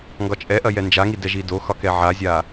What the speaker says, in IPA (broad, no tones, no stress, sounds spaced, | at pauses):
ŋ ɡ ɒ t͡ʃʼ ɛ ʔ ɐ j ɛ n d͡ʒ a ŋ i d ɛ ʒ i d o x ɒ k ɛ ʕ a zʲ a